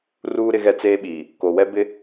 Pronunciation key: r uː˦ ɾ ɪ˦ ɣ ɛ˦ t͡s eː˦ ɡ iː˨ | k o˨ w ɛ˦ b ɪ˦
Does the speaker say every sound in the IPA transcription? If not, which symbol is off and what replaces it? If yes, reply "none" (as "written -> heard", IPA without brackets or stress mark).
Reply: ɡ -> ɓ